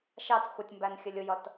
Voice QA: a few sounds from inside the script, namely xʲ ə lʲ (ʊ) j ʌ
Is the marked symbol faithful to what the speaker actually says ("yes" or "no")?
yes